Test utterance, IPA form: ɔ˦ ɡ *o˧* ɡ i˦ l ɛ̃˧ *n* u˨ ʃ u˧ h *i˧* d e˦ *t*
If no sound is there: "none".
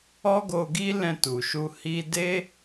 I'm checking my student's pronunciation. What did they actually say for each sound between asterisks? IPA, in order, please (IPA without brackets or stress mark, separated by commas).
o˧, t, i˧, none